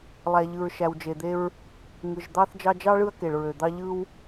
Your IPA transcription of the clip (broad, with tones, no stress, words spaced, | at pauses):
lˠæ˩ ʎɯ˩ɹʃæ˩wd͡ʒe˩d̪e˦ɹ | ŋɯ˩ʒd̪ɑ˦θ d͡ʒɑ˦d͡ʒɑ˥ɭɯ˦ɐ̯ ke˩ɭɹø˩d̪ɑ˦ ʎɯ˦w